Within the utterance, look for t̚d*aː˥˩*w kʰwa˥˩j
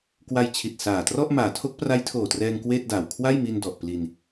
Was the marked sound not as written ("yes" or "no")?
yes